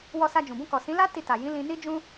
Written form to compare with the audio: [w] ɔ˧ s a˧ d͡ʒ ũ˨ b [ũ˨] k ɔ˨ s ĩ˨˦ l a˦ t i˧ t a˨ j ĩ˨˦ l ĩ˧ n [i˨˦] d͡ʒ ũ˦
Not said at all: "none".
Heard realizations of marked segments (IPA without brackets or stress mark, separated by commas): w, ũ˧, i˦